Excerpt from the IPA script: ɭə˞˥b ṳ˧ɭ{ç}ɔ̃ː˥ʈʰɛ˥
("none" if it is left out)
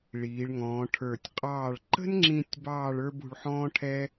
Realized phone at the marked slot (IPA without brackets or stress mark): ħ